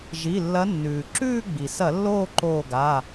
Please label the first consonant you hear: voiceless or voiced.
voiced